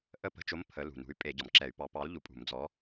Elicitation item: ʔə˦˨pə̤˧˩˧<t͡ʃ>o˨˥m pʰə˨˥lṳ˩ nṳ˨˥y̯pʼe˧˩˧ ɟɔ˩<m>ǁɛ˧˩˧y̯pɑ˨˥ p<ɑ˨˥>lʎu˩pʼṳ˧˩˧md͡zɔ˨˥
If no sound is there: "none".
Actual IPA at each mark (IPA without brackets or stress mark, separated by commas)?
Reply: t͡ʃ, m, ɑ˨˥